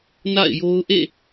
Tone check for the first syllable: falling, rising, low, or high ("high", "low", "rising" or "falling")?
falling